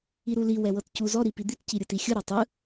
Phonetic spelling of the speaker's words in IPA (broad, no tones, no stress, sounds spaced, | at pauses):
i ɾ u l i w ɛ w ɤ t c u z ɔ ɾ i p i d̪ i t c i ɾʲ ɯ t i xʲ ɯ ɾ ɛ tˤ ɯ